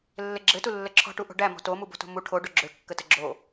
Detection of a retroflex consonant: present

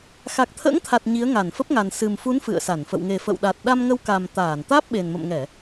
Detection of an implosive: present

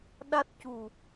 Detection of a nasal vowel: absent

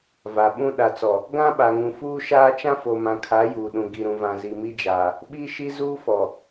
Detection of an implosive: present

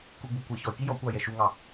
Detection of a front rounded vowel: present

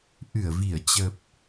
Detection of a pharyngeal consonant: absent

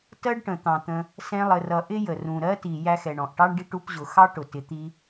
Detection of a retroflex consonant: present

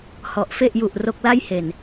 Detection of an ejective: absent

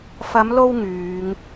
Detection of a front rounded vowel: present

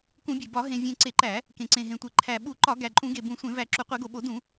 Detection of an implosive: present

